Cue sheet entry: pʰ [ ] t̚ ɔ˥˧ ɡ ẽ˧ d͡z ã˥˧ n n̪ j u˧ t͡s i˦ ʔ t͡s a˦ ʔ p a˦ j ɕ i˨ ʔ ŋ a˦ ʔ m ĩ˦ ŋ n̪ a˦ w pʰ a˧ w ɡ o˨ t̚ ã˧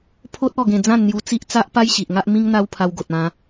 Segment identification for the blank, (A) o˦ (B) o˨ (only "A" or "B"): A